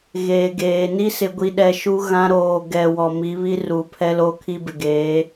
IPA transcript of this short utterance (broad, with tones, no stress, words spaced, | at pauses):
ɣeː˨ɡeː˨ ni˦sɪ˨ɡʷi˨ɗɛ˨ ʃu˦ ɣã˦ ɾoː˨ ɡɛ˨ wɔ˨mi˨˦βi˦ruː˨ pʰɛ˦loː˦kʰi˦bɪ˨ ɡeː˨˦